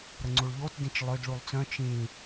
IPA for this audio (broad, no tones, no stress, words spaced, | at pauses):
ɾəŋ͡ǀuɭʎotdĩt͡ʃ lˠød ɭulˠt͡sœ̃ t͡ʃĩ